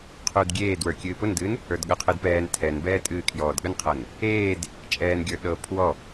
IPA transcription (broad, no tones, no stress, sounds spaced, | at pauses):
qʰ u d ɡʲ eː d w ə˞ kʲ ɨː p ʊ n d ɨː n | ə˞ d ɠ ə qʰ ɨ d p ɛː n tʰ ɛ n b ɛː tʼ ɨː kʰ j ɔː d ɠ ə n qʰ ɤ n | eː d | t͡ʃʼ ɛː n ɡʲ ə˞ ɗ ɤ pʰ w ɔ